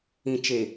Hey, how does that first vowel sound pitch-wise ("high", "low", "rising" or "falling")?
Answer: low